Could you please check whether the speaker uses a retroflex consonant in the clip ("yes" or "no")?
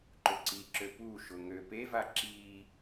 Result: no